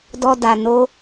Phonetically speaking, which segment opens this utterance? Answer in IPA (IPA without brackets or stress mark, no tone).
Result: d